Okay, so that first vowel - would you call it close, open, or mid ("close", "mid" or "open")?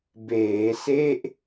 mid